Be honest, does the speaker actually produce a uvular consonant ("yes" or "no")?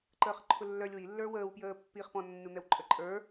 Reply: yes